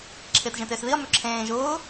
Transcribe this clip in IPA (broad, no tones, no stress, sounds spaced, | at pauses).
ǁʰ ɪː t ʒ ẽ t ɪː s ð i ɐ̯ m ø ǁʰ ẽː ʒ ʊː